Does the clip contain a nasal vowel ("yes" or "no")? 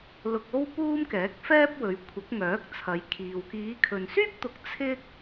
no